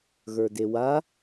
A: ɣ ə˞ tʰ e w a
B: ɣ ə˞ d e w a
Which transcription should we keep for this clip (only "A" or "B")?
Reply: B